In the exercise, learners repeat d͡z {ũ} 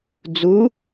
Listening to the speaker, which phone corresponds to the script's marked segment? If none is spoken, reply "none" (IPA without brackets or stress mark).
u